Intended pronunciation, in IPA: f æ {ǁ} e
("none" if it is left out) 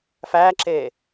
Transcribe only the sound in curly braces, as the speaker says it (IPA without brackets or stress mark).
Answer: ǁ